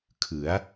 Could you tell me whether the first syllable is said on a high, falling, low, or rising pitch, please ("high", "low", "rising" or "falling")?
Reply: rising